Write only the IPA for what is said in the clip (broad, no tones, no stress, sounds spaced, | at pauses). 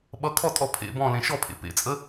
ɓ ʌ kʰ ɔ tʼ ɔ pʰ ḛ b ɔ̃ l ẽ ʃ ɔ pʰ ḛ p ḛ t͡sʼ ə